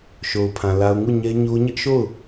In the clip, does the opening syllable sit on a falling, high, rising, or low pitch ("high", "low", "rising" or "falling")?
low